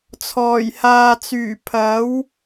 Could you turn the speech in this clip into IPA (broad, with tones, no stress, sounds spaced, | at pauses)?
t͡sʰ ɔː˨˩ j h aː˨ t͡s yː˨˩ pʰ ɐ˨˥ w